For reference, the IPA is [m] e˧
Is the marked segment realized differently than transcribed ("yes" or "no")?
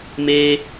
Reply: no